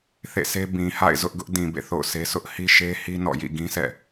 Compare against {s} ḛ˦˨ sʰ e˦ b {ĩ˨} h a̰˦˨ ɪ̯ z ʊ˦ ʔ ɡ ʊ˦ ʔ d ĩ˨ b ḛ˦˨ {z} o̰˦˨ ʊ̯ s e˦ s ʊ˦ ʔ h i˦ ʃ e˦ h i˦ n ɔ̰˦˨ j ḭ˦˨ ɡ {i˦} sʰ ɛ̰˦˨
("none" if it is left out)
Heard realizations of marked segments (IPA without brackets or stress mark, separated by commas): θ, ĩ˨, θ, ĩ˦